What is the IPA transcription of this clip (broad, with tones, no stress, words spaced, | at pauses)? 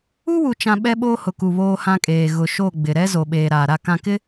u˦wu˨t͡ʃã˨ ɓɛ˦ɓoː˦hʊ˨ku˨ βoː˦hã˦kʼeː˨ ɣʊ˨ʃo˦˨ ɡ͡bɪ˨ɾɛ˦ zo˨ɓeː˨ ɾaː˨ɾa˦˨kã˦˨ kɪ˦